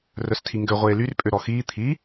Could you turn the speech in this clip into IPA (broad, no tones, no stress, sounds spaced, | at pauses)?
r œ s tʰ i ŋ ɡ ø ʁʷ eː l y r pʼ ø ɾ ɔ x iː t̪ʰ i